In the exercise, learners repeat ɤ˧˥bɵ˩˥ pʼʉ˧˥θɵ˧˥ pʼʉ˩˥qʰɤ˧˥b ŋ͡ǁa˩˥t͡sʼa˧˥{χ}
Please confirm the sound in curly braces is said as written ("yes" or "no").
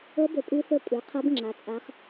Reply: yes